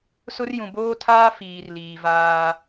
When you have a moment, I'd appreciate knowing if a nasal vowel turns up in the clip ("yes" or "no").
yes